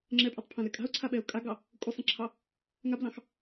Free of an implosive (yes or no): no